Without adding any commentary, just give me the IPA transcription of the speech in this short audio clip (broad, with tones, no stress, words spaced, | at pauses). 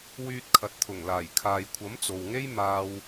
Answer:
wyː˧t̚kʰɐ˨t̚t̪ʰʊ˨˩ŋlaː˨˩j kʰaː˨jkʷʰɐ˨˥mt͡so˨wŋe˥j maː˧w